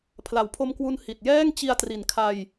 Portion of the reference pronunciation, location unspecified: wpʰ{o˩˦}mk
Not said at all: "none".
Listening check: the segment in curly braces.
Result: o˧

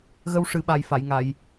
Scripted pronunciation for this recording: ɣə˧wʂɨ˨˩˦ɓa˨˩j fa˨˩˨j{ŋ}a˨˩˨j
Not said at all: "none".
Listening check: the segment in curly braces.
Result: ŋ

